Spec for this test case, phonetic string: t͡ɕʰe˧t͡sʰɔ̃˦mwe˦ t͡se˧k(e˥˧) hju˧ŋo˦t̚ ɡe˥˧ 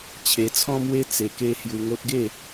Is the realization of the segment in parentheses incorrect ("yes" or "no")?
yes